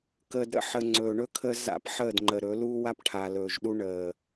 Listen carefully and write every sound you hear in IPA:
kəː˨dɾə̰˦ħə˨ ŋ͡ǀɵː˨ɳɵ˦kʰəː˦ za̰˦pħəː˦˨dŋ͡ǃə˨ɾɵ˨˦ luː˦wa˦pʈʰaː˨ lɵː˨ʒɗu˦ ɳəː˨

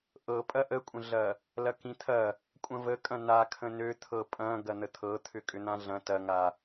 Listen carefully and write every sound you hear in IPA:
ʔɤ pʼɐʔəkʷʼə̃ɮɐ | lɐkĩt̪ʰɐ | kʷʼɐ̃vəkʼɐ̃ nakʰə̃ nøt̪ʰɤ pʼɐ̃ ɡɐn̪ət̪ʰɤ t̪ʰʏkʼʏn̪ãɮɐ̃ tɐŋa

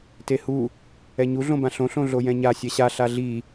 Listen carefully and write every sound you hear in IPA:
tehu | ɛɲu ɮõbãɬõ ɬõɮojɛ̃ɲa sʲɛɕa ɬaɮi

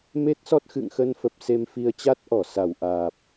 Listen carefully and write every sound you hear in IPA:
me˦˥t̚sɔ˦˥t̚ xɨ̰˧˨ŋxə˧nfə˨˩p̚ se˧mfi˧ə̯ t͡ɕa˦˥t̚ʔɔ˧˩ sa˧˩wʔaː˨˩p̚

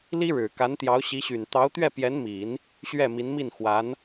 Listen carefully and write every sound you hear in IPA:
li˥ɻɻ̩˨˩ ka˧˥nt̪jɑ˧˥ʊ̯ɕi˧˥ɕy˨˩n t̪ɑ˧˥ʊ̯t̪ɥɛ˥˩pjɛ˧˥nmi˨˩˦n | ɕɥɛ˥˩mi˧˥nmi˥˩n xwa˧˥n

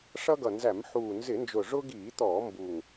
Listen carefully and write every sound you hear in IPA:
ʂʌ˦ɡʌ˨˩nzæ˧˩˧mħuː˨˩ nzɪ˧˩˧nd͡ʒʊ˨˩ʐʊ˦ɡiː˧˩˧ t̪ɔː˧˩˧mbu˨˩ŋ

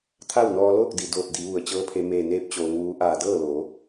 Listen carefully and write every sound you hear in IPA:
t̪ʰa˥˨wnɔː˧loː˥˨k̚ di˩doː˧˩t̚di˩˧ ʋu˩ə̯t͡ɕɤː˧˥pʰe˧ meː˧˩neː˧˥p̚ t͡ɕoː˩˧ŋʋuː˧˥ ʔaː˧˩dɤː˥˨loː˩˧

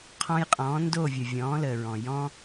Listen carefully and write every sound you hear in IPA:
qʰɔ̃˧jqʼɔ̃ː˨˦ ndo˦˨vʲə˨ vʲɔ̃ː˨˦ləː˨ɹɔ̃˨ jɔ̃˦

